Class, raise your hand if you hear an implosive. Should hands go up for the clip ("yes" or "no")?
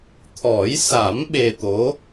yes